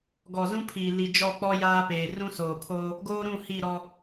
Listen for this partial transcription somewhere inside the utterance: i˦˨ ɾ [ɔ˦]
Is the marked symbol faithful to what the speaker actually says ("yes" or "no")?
yes